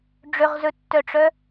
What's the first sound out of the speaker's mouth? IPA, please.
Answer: ɖ͡ʐ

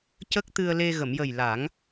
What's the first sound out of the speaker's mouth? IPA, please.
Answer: c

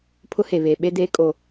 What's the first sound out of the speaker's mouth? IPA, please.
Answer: pʰ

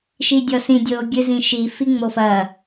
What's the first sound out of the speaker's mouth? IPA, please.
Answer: ʃ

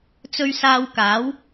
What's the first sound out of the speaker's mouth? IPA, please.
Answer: t͡s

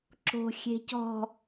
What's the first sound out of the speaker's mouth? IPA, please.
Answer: ǁ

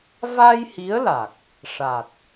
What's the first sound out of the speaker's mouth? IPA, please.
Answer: v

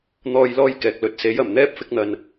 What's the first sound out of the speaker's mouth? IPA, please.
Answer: n̪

